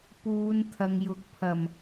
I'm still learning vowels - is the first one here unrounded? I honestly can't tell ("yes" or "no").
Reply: no